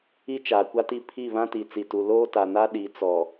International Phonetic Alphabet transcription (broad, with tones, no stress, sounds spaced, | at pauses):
i˦ t͡ʃ aː˨ kʷ a˦ t i˦˨ pʰ i˦˨ β ã˦ t i˨ t͡s i˨ t u˨ l oː˦ t a˨ n a˦ ɗ i˨˦ t͡s ɔ˨